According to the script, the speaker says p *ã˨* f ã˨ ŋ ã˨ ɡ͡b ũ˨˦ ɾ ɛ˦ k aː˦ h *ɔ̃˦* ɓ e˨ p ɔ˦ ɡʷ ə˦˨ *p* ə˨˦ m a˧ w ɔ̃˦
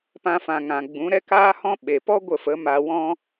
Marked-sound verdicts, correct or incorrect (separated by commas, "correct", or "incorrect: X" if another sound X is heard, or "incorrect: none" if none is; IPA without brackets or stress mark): incorrect: ã˧, correct, incorrect: f